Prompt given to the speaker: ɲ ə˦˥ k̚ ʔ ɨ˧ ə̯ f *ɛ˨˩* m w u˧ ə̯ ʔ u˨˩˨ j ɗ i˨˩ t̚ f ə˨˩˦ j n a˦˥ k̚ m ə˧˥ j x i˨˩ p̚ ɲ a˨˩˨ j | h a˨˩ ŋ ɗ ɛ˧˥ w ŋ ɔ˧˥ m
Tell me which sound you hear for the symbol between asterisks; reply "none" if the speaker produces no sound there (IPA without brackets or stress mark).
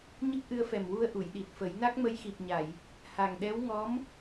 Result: ɛ˨˩